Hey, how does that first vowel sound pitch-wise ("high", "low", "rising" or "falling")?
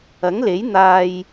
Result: rising